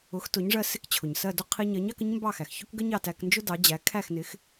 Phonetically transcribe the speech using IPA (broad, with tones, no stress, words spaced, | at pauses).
ʊ˩˥xtʊ˩˥ɲʐɜ˧ sɪ˥˩kt͡ɕʰʊ˩ɲsɜ˥˩dʊ˥ qʰi˧ɲɜ˩˥ɲ ɑ˥k ə˥ɲmbɑ˥˩xæ˩x çʊ˥kɡə˥ɲɑ˥˩tæ˧k nd͡ʒʊ˥dɑ˩˥d͡ʑæ˩˥ kʰæ˥˩xnɪ˩˥x